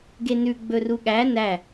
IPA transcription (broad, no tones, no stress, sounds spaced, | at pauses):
ɡ e n ʉ ɡ͡b ɵ r u ɠ æ n æ